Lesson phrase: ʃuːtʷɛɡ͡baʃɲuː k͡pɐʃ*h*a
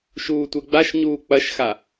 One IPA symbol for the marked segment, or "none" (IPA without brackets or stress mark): x